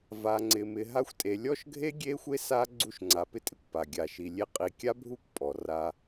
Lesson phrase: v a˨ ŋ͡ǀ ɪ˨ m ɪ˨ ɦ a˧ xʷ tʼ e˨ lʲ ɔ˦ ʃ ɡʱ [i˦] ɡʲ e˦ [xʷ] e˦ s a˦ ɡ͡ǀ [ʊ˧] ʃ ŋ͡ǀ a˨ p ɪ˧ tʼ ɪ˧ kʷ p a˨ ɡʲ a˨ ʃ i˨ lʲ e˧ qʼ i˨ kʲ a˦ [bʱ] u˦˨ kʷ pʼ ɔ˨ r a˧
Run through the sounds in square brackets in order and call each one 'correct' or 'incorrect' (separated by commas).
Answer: incorrect, correct, incorrect, correct